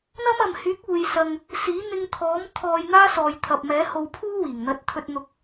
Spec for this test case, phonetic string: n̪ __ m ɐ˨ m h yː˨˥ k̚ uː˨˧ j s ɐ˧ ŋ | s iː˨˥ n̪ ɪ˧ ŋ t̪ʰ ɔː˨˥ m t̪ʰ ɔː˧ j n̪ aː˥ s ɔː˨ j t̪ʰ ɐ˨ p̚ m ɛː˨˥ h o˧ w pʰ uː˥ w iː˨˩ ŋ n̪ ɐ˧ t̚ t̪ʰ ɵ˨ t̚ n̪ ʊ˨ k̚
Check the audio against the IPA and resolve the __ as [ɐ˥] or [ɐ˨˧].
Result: ɐ˥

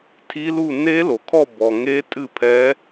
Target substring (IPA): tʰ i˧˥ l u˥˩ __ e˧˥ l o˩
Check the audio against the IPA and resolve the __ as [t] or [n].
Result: n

